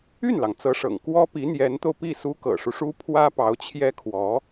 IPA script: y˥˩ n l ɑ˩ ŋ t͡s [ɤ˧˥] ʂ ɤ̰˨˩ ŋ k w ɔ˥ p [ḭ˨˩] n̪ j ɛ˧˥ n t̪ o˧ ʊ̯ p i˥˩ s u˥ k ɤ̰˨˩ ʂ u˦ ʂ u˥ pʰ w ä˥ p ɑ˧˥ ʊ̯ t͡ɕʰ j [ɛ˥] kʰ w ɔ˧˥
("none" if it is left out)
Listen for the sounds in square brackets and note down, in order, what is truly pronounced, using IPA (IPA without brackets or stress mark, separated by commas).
ɤ˧˥, i˧˥, ɛ˥